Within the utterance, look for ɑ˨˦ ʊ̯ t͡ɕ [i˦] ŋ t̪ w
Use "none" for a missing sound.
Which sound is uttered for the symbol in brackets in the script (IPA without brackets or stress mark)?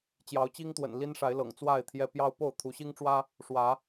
i˦